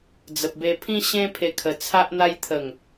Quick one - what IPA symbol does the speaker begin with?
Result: d͡z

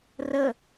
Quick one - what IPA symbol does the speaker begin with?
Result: r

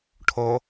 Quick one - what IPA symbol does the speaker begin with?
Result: ʈʰ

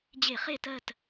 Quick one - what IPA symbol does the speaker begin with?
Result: d͡ʑ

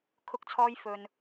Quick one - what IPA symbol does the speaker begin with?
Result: kʰ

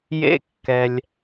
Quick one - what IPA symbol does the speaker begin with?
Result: j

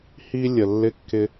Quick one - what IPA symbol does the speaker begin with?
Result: h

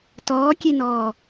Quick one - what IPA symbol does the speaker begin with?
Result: t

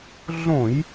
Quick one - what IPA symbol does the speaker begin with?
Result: ɮ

